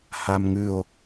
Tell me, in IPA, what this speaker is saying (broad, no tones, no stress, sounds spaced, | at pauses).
h a m ŋ ʉ o̯